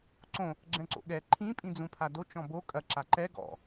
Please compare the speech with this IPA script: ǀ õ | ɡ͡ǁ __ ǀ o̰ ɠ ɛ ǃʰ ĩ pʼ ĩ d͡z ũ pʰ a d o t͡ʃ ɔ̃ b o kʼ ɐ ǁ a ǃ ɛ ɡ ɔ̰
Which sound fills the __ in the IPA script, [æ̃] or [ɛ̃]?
ɛ̃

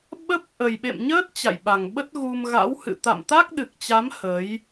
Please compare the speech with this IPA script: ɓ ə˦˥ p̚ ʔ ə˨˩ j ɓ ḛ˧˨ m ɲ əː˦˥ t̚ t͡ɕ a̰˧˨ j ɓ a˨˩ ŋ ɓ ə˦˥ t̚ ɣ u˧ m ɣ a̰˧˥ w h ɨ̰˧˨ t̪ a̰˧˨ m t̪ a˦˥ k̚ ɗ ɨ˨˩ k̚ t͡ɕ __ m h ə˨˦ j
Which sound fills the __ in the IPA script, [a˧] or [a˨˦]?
a˨˦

